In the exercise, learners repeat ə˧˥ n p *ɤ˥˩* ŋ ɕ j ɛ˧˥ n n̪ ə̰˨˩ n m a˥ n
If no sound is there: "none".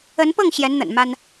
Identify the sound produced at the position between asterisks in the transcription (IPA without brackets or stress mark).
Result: ɤ˥˩